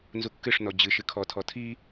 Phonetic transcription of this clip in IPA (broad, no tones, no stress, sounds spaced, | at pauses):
n z u kː ɨ ʂ n ɔ d͡ʑ ɨ ʃ ɨ kʰ ɔ tʰ ɔ tʰ i